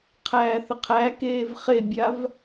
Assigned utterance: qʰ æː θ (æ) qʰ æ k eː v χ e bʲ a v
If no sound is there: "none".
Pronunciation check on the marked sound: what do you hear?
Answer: ə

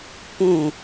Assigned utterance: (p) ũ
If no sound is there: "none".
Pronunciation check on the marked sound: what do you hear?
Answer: p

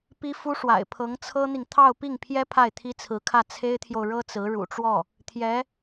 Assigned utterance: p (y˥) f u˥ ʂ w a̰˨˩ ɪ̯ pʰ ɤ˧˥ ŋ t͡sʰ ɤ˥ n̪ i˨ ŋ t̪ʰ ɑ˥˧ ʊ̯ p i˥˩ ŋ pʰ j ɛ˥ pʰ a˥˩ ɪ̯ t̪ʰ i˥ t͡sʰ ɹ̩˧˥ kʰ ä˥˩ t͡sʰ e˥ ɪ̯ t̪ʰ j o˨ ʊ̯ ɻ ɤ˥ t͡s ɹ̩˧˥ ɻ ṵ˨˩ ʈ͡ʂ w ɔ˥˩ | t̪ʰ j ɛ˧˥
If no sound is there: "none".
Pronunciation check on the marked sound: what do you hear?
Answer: i˥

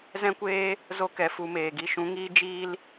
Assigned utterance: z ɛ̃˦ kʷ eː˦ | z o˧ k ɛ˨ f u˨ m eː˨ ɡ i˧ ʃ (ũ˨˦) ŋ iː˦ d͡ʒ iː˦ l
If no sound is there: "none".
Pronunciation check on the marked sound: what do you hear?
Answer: ũ˨˦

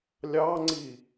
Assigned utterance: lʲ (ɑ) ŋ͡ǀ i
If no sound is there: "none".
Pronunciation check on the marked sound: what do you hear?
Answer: ɑ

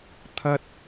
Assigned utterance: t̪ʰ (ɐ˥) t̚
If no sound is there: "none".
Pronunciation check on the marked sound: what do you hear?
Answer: ɐ˥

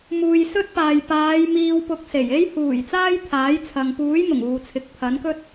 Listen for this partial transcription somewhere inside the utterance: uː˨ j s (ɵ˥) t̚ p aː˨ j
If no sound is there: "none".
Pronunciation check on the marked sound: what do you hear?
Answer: ɵ˥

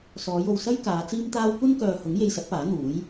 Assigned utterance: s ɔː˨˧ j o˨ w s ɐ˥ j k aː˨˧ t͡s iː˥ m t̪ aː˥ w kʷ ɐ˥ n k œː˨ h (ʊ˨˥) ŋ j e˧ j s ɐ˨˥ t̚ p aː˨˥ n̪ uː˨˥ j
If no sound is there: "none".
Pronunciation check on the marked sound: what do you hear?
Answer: ʊ˨˥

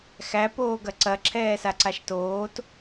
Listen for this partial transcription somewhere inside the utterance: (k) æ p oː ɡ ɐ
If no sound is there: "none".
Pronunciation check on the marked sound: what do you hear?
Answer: x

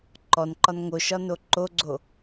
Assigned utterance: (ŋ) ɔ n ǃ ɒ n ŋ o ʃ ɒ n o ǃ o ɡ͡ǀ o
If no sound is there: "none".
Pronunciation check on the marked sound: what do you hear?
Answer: ǃ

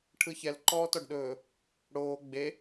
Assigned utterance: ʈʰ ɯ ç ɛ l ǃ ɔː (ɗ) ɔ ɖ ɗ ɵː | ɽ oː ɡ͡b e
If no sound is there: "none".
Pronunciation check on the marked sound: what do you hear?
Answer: t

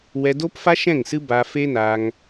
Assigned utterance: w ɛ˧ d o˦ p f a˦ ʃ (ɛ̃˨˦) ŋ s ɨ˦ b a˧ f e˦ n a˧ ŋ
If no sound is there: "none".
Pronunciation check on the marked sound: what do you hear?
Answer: ɛ̃˦˨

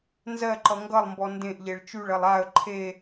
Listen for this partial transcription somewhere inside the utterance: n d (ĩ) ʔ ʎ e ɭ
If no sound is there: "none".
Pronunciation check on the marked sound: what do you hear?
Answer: ẽ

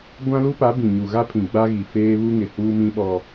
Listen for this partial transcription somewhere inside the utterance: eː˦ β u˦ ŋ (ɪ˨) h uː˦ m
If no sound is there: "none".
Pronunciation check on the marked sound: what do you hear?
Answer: ɪ˨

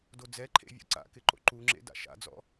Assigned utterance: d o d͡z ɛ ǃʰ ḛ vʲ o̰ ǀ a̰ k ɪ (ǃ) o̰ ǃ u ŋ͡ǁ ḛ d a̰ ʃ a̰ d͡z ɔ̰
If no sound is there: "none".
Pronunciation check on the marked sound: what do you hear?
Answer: ǃ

